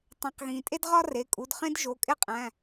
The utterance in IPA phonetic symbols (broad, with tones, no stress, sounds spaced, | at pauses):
tˤ ẽ˩˧˩ q ɣ ĩː˩ tʼ e˥ d ʁ ɒ˥ r e˩˧˩ kʼ u˩˧˩ d χ ẽ˥ d ʒ o˩˧˩ kʼ e˥ qʼ æ̃˩˧˩